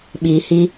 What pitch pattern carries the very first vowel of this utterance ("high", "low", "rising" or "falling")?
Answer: low